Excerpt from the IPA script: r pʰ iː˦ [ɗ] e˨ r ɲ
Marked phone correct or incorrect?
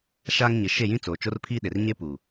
correct